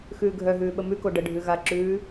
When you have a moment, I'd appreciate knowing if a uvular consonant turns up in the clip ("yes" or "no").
no